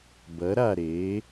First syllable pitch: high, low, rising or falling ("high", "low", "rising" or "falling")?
rising